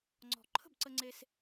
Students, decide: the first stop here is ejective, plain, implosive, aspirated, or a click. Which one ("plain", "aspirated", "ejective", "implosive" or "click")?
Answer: click